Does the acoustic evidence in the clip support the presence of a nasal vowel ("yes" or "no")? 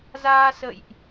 no